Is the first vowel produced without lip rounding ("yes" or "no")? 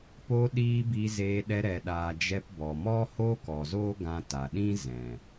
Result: no